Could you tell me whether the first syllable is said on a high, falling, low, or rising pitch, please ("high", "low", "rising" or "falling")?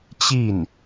falling